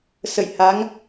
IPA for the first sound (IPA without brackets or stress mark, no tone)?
s